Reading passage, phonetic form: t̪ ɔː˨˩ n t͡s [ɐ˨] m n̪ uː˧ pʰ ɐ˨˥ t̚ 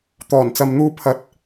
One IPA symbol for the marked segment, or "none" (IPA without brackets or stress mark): ɐ˨